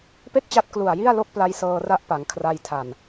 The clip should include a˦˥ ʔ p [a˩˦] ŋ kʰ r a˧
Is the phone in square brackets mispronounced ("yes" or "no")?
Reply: no